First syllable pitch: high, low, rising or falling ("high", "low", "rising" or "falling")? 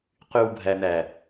low